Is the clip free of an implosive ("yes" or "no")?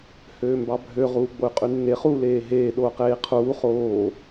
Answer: no